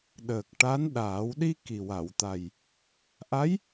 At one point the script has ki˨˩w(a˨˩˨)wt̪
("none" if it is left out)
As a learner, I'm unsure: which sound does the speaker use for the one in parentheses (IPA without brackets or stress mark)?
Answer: a˨˩˨